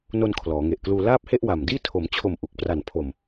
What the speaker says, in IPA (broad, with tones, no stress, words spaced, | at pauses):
no˧n kʰlɔː˩˦ ŋe˨˩ʔkluː˧ laː˥˩p̚he˥˩ʔwa˨˩mdiː˥˩ tʰo˩˦mt͡ɕʰo˨˩m ʔu˨˩k̚pra˨˩npʰo˨˩m